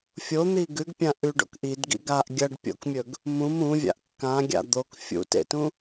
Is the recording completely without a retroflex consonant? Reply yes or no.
no